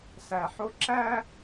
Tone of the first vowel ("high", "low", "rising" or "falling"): low